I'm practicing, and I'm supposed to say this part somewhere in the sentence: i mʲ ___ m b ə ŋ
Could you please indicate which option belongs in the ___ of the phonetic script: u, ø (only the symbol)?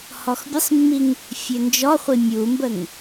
u